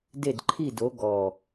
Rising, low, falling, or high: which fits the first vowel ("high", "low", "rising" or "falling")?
falling